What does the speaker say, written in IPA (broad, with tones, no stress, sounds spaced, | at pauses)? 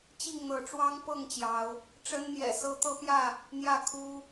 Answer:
t͡ɕ i˥˨ ŋ n̪ ɤ˨˦ ʈ͡ʂ w ɑ˦ ŋ p ɤ˥˨ ŋ t͡ɕ j ɑ˨˦ ʊ̯ | ʈ͡ʂ ə˦ n n̪ j ɛ̰˨˩ s ɤ˦ t̪ ɤ˦ p j ä˥˨ | n̪ j ä˥˨ kʰ u˦